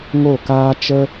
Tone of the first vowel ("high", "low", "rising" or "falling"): falling